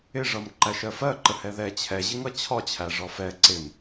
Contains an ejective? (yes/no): no